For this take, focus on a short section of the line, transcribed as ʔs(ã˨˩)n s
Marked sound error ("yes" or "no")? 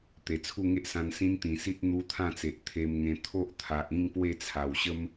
yes